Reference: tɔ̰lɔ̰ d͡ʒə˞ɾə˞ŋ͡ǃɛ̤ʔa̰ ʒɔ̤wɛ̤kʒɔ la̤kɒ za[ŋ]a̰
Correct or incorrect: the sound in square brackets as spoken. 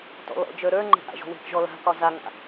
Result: correct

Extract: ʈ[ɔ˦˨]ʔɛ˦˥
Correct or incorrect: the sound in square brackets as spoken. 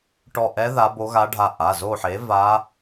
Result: correct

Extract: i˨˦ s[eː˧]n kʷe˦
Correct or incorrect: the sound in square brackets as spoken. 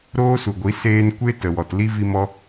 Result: correct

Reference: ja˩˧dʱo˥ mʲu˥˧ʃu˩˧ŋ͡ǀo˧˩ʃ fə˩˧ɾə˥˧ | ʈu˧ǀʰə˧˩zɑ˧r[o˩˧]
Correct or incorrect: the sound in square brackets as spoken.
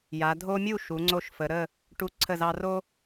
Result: incorrect: o˥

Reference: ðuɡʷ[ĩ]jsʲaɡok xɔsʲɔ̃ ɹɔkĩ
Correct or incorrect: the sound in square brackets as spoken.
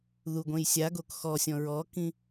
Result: incorrect: ẽ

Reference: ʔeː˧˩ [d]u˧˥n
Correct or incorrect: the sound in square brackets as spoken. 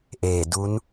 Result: correct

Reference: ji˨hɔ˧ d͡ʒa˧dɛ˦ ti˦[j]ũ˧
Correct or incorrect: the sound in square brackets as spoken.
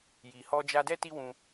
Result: incorrect: w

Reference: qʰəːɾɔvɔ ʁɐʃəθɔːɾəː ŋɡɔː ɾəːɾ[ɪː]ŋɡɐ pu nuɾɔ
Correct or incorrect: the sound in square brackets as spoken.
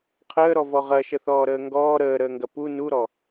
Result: incorrect: əː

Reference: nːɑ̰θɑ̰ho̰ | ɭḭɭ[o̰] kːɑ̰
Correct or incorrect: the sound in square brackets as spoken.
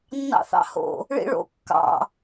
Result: correct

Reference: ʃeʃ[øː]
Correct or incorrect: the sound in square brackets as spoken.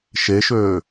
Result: correct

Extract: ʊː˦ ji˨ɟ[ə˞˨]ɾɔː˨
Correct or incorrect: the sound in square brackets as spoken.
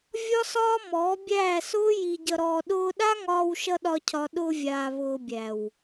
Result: incorrect: ʌ˨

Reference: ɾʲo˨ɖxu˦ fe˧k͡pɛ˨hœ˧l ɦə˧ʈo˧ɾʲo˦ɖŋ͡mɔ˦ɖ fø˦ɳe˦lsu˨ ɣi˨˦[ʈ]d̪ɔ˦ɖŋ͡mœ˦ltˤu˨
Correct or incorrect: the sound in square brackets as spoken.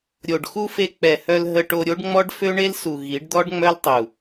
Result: incorrect: ɖ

